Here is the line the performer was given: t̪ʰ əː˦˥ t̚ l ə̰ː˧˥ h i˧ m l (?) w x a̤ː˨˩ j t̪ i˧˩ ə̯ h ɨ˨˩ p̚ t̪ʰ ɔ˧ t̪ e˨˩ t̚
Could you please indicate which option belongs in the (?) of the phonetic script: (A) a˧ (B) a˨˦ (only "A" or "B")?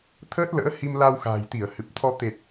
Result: A